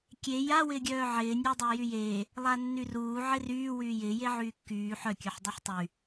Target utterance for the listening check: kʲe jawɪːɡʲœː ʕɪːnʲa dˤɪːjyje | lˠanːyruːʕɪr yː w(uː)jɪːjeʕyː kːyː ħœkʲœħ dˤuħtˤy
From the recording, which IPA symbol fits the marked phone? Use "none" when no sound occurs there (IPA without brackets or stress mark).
yː